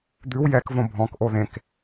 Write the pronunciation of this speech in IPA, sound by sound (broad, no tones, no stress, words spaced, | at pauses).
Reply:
d̪ʉw jɛkvõ bʱɔ̃kʔo ðẽk